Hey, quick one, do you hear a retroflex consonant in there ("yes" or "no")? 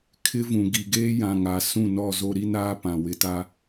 no